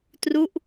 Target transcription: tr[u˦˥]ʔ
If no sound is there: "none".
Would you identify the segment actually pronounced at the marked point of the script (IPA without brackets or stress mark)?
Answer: u˦˥